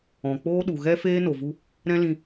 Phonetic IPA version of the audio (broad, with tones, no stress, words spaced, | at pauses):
ɔ̃˨k͡poː˦ɗu˨ ɣɛ˦feː˦ no˨vu˦ | ɾɛ̃˦lĩ˧